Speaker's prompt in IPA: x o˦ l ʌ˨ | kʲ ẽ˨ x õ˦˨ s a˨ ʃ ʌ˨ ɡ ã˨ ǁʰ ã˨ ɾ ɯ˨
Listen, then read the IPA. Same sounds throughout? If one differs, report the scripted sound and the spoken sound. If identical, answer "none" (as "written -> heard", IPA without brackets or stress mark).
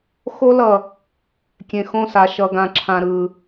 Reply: none